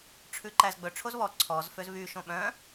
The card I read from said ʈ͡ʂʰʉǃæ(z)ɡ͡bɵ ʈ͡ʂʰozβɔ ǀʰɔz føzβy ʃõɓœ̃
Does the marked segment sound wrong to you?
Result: no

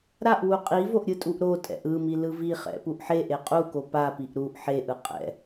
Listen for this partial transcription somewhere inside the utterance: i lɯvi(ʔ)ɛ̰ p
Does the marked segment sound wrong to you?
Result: yes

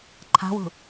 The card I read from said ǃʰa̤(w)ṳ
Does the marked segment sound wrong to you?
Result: no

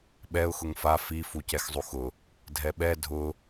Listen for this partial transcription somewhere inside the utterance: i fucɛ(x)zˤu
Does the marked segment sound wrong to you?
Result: no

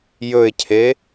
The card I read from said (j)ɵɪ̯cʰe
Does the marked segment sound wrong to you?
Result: no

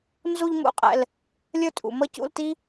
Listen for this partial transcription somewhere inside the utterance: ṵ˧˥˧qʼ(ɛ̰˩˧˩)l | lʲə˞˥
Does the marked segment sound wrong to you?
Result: no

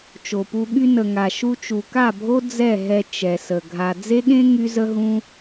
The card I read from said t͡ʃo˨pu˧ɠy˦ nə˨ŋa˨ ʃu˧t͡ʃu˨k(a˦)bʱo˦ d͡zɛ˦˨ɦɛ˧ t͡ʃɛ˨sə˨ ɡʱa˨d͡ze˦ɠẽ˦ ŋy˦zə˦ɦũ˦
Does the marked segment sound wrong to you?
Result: yes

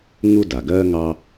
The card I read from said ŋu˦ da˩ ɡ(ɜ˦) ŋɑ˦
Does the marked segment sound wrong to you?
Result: no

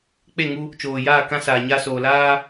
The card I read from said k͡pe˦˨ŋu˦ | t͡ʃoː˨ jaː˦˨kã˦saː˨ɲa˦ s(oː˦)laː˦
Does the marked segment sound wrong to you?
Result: yes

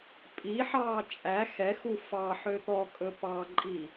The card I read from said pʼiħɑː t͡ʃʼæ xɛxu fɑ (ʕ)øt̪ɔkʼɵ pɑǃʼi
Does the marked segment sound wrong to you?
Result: yes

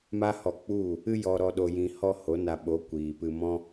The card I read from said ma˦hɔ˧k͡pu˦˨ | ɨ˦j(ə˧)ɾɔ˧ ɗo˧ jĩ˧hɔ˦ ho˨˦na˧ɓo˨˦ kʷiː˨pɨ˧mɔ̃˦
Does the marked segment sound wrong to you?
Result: yes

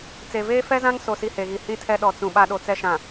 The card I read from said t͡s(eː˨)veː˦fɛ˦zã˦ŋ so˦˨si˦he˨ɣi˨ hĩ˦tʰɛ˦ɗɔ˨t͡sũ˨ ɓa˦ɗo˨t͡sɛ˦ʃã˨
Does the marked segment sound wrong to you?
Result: yes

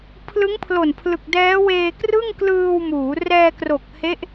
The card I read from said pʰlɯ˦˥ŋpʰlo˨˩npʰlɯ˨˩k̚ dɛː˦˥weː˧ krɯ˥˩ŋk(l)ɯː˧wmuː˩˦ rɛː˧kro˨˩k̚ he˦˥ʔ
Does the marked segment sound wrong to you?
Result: no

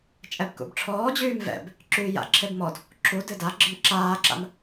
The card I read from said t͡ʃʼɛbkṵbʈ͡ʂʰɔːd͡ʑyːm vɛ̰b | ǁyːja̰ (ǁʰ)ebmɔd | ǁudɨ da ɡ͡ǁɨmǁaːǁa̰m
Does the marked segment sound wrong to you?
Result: no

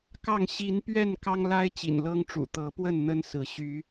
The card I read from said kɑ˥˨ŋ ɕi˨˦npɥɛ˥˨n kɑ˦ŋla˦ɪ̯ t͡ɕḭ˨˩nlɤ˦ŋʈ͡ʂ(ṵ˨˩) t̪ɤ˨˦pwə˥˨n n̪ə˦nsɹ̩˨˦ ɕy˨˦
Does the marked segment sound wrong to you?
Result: no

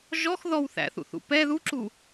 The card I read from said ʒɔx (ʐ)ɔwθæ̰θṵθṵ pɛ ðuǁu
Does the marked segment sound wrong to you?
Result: yes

